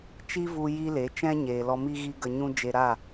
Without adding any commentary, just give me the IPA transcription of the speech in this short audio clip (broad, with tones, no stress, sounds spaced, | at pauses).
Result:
t͡ʃ i˦ v u˧ j i˦ l e˨˦ t͡ʃ ɛ̃˦ ɲ eː˨ l ɔ˧ m i˦ ɣ i˦ ɡ ə˧ ɲ ũ˦ d͡ʒ e˧ ɾ a˦˨